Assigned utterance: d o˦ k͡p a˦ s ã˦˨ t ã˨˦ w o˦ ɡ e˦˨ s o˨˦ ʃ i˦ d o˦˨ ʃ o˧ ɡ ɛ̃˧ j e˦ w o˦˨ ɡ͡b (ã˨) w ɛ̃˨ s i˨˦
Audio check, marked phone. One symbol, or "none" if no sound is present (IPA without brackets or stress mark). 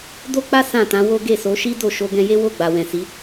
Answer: a˨